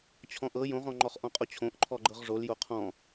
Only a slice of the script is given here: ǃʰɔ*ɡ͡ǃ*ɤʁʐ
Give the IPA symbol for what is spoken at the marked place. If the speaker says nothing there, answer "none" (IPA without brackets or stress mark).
ɡ͡ǃ